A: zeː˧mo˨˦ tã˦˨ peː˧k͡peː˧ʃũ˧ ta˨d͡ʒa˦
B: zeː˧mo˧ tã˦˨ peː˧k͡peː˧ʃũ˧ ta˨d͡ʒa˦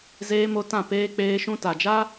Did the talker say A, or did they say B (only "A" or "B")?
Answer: B